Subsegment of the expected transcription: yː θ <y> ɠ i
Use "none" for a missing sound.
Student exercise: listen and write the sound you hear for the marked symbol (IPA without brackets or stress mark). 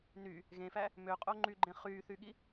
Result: y